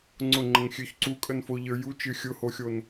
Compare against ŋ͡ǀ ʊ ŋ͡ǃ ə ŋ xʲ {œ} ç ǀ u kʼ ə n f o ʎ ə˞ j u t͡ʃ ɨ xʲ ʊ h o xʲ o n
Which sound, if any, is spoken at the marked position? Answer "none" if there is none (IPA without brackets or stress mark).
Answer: ø